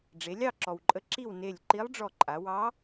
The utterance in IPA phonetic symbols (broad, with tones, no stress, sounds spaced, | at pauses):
ɖ͡ʐ e˩˧ lʲ ɑ˥˨ ǁ ɔ˩ w ǃʼ ə˧˥ ǁ i˥˨ w n e˧˩ lʲ ǃ i˧˥ lˠ ɖ͡ʐ ɔ˧˩ ǃʼ a˩˧ w ɑ˧˥